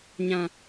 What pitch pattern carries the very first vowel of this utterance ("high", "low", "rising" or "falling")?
high